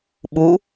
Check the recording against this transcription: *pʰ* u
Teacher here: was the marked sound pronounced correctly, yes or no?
no